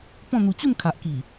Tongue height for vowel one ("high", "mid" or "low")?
mid